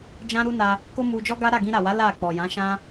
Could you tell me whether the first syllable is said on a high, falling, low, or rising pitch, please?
high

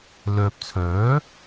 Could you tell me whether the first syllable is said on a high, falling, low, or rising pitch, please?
low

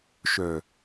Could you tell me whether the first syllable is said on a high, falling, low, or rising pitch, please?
low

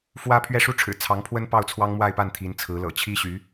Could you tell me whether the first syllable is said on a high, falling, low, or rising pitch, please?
high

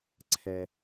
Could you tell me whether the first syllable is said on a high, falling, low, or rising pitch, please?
high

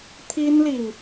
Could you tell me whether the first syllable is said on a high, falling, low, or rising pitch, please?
high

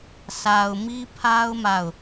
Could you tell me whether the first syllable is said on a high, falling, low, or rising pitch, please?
low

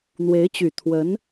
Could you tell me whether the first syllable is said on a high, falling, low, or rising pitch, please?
rising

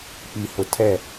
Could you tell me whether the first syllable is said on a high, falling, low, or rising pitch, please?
low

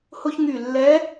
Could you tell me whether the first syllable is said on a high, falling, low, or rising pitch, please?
high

